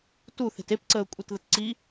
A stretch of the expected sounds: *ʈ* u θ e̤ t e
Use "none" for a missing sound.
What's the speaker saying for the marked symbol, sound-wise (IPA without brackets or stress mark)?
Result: t